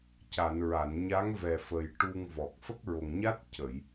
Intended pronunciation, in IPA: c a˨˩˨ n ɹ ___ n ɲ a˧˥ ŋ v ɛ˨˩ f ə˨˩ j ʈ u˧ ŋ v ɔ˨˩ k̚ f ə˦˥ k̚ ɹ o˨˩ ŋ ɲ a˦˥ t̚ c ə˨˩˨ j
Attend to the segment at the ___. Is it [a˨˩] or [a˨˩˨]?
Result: a˨˩˨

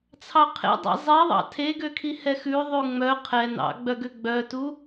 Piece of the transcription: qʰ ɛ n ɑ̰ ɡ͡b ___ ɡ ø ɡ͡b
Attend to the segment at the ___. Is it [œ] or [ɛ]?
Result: œ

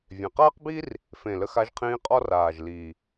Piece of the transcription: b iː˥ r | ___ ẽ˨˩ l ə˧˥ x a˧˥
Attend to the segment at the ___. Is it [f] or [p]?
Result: f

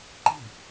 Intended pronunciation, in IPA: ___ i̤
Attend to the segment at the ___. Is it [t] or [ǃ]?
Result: ǃ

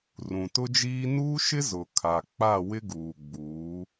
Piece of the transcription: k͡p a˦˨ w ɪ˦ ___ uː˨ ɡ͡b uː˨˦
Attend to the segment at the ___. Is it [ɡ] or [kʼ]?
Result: ɡ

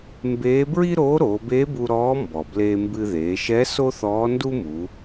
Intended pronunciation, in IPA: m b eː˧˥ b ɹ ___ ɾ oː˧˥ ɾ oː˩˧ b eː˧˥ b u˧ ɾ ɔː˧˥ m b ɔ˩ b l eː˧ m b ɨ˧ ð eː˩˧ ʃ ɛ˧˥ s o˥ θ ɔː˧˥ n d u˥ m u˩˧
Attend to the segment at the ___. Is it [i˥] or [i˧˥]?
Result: i˥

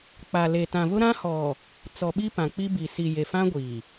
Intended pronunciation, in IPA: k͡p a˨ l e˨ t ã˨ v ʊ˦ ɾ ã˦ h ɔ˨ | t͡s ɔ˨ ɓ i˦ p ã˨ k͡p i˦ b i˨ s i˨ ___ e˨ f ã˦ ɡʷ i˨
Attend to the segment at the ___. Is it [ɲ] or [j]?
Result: j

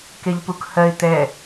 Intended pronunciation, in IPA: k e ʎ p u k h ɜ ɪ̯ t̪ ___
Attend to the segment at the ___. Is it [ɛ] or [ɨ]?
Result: ɛ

